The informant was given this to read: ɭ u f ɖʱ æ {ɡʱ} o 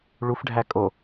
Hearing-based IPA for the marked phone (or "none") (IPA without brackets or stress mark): kʼ